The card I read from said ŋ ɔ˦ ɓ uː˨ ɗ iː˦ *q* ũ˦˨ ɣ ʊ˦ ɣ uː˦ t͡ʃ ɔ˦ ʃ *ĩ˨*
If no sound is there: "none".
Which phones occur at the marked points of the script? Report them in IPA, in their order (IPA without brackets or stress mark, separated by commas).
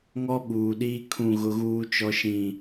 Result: kʰ, ĩ˦˨